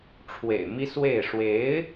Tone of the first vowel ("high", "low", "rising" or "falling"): low